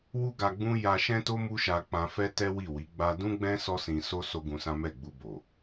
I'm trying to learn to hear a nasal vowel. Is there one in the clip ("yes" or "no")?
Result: yes